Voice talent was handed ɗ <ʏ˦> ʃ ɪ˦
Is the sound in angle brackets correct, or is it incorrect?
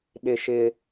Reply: incorrect